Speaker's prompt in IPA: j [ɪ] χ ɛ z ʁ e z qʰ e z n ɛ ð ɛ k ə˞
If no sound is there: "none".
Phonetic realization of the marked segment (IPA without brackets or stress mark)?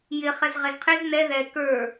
ɪ